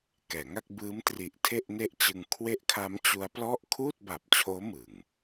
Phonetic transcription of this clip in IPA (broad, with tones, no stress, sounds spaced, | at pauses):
k ɛː˩˦ ŋ a˥˩ k̚ b ɯː˦˥ m t r i˨˩ ʔ tʰ e˥˩ ʔ n e˥˩ ʔ t͡ɕ ɯ˧ ŋ kʰ w e˦˥ ʔ kʰ a˦˥ m t͡ɕ u˦˥ a̯ p l ɔ˥˩ ʔ kʰ uː˥˩ t̚ b a˨˩ p̚ t͡ɕʰ oː˦˥ m ɯ˨˩ ŋ